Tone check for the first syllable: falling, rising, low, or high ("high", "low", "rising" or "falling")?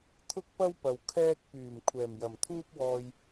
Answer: high